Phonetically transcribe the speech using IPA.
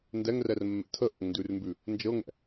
n d ɛ ŋ r ɛ r mː ɛ̰ tʰ ə ʔ o̰ ŋ n d ʉ r m b ʉ | n d͡ʒ ɤ ŋ ɛ̰

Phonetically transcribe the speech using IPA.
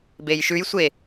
b e j ʃ ʉ j sʷ e

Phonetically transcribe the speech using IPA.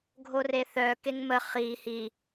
ɡʱ o r e θ œ k e ŋ m ə χ i h i

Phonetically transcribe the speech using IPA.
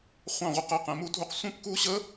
χʷ ɑ̃˥˨ ʁʷ ɛ˥˨ q ɛ˥˨ q ɛ̃˨˦ m u˦˥ dʱ u˦˥ q sʷ ɛ̃˥˨ p k u˦˥ ɕ ə˦˥

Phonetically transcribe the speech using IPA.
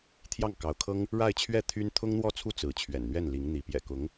t̪ʰ j ɑ˥˩ ŋ k ɑ˧˥ ʊ̯ kʰ ɤ˥ ŋ | ɻ a˥˧ ɪ̯ t͡ɕʰ ɥ ɛ˥˩ t̪ʰ y˥ n t̪ʰ ʊ˥ ŋ n̪ w ɔ˥˩ t͡sʰ u˥ t͡s ɹ̩˧˥ t͡ɕʰ ɥ ɛ̰˨˩ n n̪ ɥ ɛ˥˩ n l i˧˥ ŋ n̪ i˧˥ p j ɛ̰˨˩ k ʊ˧˥ ŋ

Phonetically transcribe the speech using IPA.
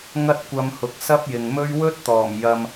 ŋ ɐ˥ t̚ kʷ ɐ˧ m h ʊ˨˥ k̚ s ɐ˥ p̚ j ɪ˨ ŋ m ɵ˥ ɥ w ɵ˥ t̚ t̪ ɔː˨˩ m j ɐ˧ m

